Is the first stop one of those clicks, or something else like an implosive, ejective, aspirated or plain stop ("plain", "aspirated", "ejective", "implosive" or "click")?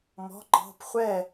click